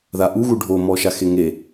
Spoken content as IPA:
ðaʔuɣu ɖʱomɔʃaxe ŋe

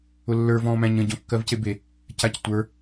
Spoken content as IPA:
ʊlːə˞ vɔ̃ːmæ̃ɲə̃ ɟɔ̃kːɜvcebe | cactʷə˞

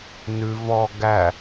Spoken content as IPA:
nʉ vɔ ɡæ

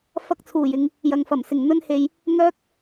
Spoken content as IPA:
fɐ˧k̚t͡sʰuː˨˩jɪ˨ŋ | jɐ˨ŋfɐ˨˩m sɪ˨˩ŋn̪ɵ˧nhe˨j | ŋœː˧k̚

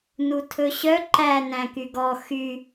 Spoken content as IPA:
nutʰɵɕœ ǃæ næ̃kyɡɔ xy

